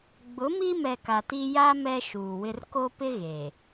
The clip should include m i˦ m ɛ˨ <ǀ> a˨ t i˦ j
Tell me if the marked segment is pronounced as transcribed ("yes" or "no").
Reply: no